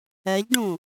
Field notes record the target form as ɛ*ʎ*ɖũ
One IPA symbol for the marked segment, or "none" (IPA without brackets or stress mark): ʎ